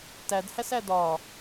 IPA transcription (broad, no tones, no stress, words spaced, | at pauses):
tædhæsæ dɒ